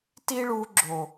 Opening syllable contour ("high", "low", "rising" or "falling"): high